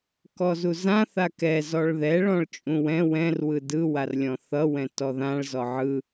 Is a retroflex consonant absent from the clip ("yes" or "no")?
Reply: no